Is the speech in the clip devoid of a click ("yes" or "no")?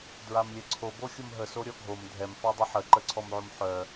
no